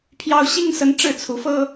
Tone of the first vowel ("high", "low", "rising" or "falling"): high